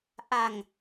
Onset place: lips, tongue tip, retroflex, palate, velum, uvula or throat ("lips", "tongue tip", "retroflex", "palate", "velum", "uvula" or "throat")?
throat